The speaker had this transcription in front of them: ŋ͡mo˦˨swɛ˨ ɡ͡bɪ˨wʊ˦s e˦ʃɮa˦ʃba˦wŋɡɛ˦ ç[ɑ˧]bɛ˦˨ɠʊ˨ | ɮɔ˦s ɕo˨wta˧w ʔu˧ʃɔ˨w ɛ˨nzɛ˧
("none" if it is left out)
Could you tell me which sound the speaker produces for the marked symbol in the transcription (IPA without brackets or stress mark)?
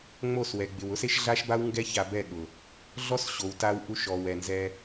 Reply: a˧